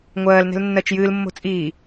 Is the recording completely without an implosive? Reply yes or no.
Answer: yes